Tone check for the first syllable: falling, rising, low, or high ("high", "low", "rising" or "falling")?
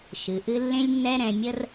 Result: low